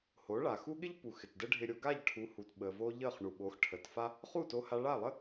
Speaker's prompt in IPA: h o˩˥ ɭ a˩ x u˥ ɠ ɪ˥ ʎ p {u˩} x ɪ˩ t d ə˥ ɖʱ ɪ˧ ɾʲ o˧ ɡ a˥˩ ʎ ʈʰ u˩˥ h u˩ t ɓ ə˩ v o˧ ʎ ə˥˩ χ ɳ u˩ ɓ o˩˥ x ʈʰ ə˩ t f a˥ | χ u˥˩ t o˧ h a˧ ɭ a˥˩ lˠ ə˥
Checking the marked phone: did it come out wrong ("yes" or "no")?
no